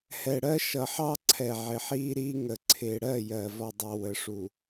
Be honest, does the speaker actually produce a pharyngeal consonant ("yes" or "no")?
yes